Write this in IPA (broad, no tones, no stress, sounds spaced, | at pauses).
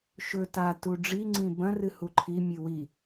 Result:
ʃ ɵ t a t u ɖ͡ʐ i ŋ͡ǀ ĩ b ɐ̃ r ɨ h u ǃʰ i mʲ ɨ w i